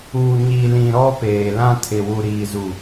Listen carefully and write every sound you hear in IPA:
uː˨ ɲ i˨ l ĩ˨ ɾ ɔ˦ p eː˨ l ã˦ tʰ ɪ˨ w u˨ ɾ iː˨ z u˨

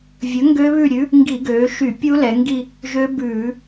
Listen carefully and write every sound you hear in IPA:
vʲ ɵ˨˥ ŋ ɡ ø˦˥ β ʉ˦˨ ɾʲ ʉ˨˥ | ŋ ɡ i˧˩˧ ɡ øː˩˧ ʃ y˧˩˧ pʲ u˦˥ l ɛ˩˧ ŋ ɡ i˦˨ | ʒ ø˦˥ b ʉː˧˩˧

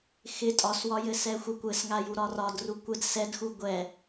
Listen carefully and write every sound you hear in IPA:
x ɪ tʼ ɒ s w ɒ j ɘ s ɛ xʷ ɘ kʷ ɘ s ŋ a j u ɾ ɒ r ɒ d r u kʷ ɘ d s ɛ d x u ɡʷ ɛ

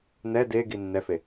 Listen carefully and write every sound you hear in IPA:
n ɛ d e ɡ i nː ɛ f e

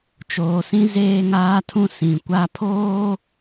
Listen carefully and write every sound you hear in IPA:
t͡ʃ oː˨ s ĩ˦ z eː˦ ŋ aː˦ tʰ ũ˦ s ĩ˨ kʷ a˦ pʰ oː˦

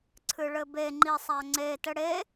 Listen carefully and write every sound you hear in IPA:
ǀʰ ɨ ɭ ɘ b e ŋ͡ǃ i sˤ a ŋ͡ǀ e t ɘ ɽ e

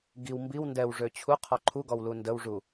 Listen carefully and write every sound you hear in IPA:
ɡ i w m b i w n d ɛ w ʐ ø t͡ɕʰ u qʰ ɔ ǃʰ u ɡ ɔ w l u n d ə w ʐ u

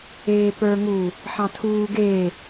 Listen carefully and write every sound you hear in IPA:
eː p ə˞ ŋ u | ħ ɑ̃ tʰ uː ɡ eː

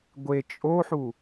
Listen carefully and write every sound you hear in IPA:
ɡʷ e t͡ʃʼ o ħ u

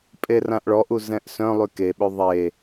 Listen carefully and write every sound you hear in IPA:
pʼ e r ã ʔ ɭ ɔ ʔ u z ɛ̃ ʔ s œ̃ lˠ y k e ɓ ø ðˤ e

